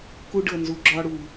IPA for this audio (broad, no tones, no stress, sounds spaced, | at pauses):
k u ɖ ɤ n z u ɡ͡ǁ ɒ ɽ u